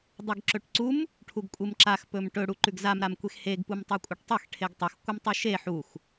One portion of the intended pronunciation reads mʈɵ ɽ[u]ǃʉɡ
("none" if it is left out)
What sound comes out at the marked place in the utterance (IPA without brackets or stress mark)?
u